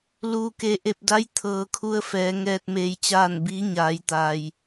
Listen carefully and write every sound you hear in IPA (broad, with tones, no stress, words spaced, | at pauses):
luː˩ke˩ ʔe˧˩p̚da˧˥j t̪ʰɤː˩kʰu˧ə̯fɛː˩˧ ŋɛː˧t̚meː˧jt͡ɕaː˥˨n biː˧˥ɲaː˩˧j t̪aː˩j